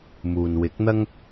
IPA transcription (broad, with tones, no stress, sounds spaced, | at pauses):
m uː˨ n w ɪ˨˥ k̚ n̪ ɐ˥ ŋ